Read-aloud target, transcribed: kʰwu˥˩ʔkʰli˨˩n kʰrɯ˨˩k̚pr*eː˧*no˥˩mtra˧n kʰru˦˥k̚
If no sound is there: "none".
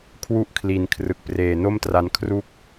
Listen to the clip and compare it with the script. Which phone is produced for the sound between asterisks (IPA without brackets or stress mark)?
eː˨˩